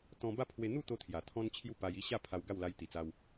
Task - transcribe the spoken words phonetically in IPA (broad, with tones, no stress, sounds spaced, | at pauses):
t̪ ɔ̃˧ b a˥˧ pʰ w e˧ n̪ u˥˧ t̪ o˧ t̪ʰ j a˨˩ t̪ʰ ɔ̃˦ n t͡ɕʰ j u˥˧ p a˧ j i˦ ɕ a˥˧ pʰ a˧ w ɡ a˥˧ w l a˧ j t̪ i˨˩ t͡s a˧ w